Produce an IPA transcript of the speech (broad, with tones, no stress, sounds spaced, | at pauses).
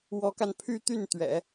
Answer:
w ɔ˧˥ k a˧ n pʰ y˥˧ t̪ y˥˩ n t̪ ɥ ɛ̰˨˩˦